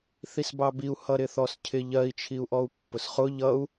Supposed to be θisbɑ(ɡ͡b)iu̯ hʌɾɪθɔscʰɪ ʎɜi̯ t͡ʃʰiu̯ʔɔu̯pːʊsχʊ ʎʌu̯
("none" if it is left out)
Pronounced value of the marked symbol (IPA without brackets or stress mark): b